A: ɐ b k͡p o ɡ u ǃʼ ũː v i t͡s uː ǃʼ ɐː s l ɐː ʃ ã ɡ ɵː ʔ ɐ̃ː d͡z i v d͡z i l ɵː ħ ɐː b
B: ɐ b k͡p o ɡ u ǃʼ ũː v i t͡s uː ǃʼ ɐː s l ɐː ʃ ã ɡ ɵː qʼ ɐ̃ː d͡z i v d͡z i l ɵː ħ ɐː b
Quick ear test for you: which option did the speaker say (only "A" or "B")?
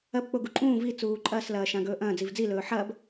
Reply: A